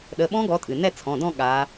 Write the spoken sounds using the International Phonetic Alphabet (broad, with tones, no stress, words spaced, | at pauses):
ɗə˩˧˩ɓɔ̃˦˥ɡɔ˨˦ tʼɨ˩ nɛ˥˧t͡sʰɔ̃˩˧˩dɔ̃˥˧ ɠa˨˦